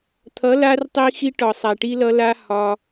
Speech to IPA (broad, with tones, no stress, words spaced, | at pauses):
t̪ʰʌ˨˦la˧rtˤi˧xi˧ ʈɒ˨sˤa˨ʈi˧lʌ˧ la˧ hɒ˧